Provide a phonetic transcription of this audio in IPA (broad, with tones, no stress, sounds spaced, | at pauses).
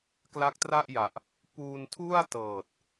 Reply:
k l a˦˥ k̚ t r a˥˩ ʔ j a˨˩ ʔ | p uː˧ n tʰ u˥˩ a̯ t ɤː˨˩ t̚